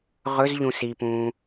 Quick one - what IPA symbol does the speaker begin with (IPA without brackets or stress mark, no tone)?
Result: ʁ